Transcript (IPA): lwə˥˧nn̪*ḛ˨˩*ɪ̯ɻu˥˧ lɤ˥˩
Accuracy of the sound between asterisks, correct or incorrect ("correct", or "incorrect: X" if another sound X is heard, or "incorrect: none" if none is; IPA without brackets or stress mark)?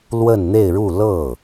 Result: incorrect: e˥˧